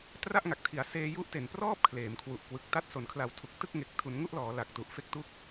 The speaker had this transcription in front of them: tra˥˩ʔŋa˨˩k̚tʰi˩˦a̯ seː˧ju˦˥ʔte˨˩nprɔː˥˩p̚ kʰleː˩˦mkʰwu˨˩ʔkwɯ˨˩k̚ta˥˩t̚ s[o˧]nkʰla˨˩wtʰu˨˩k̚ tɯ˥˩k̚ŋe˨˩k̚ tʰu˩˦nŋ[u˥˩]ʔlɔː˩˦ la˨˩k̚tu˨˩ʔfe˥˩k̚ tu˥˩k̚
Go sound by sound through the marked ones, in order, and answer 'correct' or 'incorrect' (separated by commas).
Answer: incorrect, correct